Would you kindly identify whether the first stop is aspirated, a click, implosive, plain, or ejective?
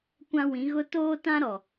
plain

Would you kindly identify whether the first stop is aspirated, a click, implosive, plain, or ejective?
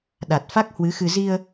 implosive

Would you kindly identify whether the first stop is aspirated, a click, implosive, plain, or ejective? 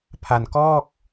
aspirated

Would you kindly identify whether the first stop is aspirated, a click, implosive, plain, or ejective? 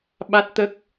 implosive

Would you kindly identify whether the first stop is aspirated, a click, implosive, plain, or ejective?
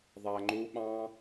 click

